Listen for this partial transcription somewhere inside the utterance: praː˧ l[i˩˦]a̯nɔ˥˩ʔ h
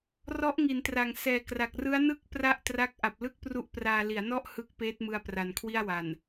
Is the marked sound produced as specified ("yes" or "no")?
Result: yes